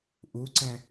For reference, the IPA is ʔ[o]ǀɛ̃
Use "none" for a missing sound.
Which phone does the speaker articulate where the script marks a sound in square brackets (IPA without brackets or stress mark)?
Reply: u